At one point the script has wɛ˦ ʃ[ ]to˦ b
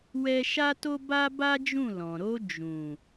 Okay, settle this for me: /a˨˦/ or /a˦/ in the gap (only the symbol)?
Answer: a˦